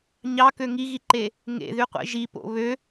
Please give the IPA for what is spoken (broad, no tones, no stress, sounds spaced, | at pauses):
ɲ ɑ k ø ŋ i ɣ i ǃ e | ŋ ḛ ð y qʷ ḛ ʒ i p o̰ β ø